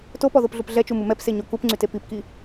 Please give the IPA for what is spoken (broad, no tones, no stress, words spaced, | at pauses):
topɔðopɮup ɮɛt͡ʃumu mɛpseɲo kupŋ͡ǀyte pipki